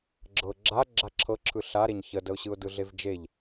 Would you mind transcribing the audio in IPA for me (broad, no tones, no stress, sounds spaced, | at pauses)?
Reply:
ɡ͡ǁ ɤ ɡ͡ǁ a ɡ͡ǁ a ǁʰ ɤ ǁʰ ɯ ɬ a ɾ e ɲ ç ə d ə ʊ̯ ɕ ɯ ʊ̯ d ɯ ɮ e v d͡ʒ e ʎ